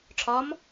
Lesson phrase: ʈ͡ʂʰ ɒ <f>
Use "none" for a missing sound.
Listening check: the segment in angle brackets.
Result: m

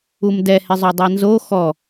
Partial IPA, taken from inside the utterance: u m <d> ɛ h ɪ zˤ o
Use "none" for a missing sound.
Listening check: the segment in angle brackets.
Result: d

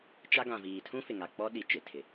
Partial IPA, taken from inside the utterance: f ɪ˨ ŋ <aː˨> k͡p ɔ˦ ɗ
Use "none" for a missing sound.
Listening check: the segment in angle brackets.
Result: a˨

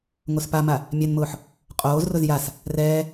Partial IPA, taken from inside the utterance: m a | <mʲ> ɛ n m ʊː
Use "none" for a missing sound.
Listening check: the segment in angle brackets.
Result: mʲ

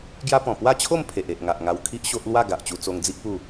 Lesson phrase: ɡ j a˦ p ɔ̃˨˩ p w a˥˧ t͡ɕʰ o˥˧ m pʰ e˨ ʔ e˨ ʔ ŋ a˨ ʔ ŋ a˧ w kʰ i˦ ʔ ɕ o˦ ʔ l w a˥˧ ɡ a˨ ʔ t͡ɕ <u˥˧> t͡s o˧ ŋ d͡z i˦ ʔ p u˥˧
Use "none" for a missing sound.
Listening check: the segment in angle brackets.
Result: u˧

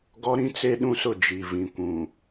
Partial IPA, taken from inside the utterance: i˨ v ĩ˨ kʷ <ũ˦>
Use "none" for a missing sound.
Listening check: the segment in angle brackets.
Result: ũ˨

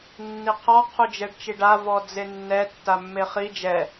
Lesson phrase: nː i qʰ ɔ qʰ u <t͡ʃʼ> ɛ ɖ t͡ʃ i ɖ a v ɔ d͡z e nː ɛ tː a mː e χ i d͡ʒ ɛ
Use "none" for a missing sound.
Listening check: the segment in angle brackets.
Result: d͡ʒ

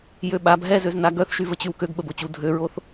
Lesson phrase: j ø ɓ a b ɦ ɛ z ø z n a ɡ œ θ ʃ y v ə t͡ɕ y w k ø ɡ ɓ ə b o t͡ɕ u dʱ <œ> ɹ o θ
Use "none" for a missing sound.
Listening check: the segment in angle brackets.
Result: ø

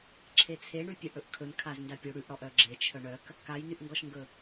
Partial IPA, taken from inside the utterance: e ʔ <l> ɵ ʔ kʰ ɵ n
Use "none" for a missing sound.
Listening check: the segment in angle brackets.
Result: ɽ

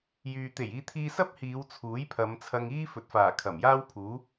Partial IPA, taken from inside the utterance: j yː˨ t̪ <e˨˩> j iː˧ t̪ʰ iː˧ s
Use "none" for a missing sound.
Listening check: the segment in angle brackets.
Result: e˨˩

